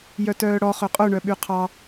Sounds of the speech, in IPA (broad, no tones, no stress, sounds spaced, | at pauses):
j œ t œː ɽ ɔ χ ø qʼ o ɳ œ ɓ y qʰ ɑ